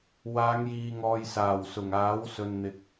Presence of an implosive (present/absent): absent